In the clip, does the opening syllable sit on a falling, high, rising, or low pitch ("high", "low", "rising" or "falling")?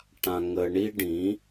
high